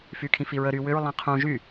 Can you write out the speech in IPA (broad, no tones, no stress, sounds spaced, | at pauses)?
f y kʰ ĩ f i ɹ ə ɾ y w ʏ ɹ lˠ ĩ qʰ ũ ʒ y